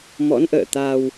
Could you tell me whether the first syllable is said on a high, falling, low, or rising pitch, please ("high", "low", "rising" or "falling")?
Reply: rising